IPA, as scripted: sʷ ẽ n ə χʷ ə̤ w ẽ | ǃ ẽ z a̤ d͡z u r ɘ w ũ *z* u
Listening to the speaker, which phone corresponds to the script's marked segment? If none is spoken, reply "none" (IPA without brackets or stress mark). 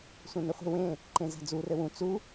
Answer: t͡s